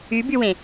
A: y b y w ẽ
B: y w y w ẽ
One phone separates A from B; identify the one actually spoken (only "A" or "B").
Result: A